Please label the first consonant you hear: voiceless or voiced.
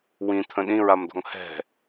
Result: voiced